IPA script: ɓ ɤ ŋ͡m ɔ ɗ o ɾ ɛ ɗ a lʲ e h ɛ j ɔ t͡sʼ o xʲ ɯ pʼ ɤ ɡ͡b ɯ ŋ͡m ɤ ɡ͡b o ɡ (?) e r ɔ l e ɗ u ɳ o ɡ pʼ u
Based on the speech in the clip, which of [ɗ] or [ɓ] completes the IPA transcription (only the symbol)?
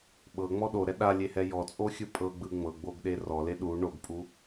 ɗ